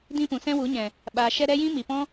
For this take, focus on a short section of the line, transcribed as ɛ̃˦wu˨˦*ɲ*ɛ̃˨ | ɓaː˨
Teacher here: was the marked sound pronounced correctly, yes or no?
yes